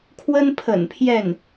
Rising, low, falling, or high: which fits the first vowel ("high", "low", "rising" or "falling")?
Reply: high